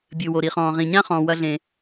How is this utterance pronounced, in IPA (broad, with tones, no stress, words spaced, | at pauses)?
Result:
bʲɨ˩wo˩ɾi˩χɔ̃ː˩ ʁĩ˩ɲã˦χɔ̃ː˩wɐ˨ ɮẽ˩